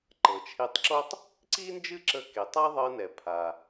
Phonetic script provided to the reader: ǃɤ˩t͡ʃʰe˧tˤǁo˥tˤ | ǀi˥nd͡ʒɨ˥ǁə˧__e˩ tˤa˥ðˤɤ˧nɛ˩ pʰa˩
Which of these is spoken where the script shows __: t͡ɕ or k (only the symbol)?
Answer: k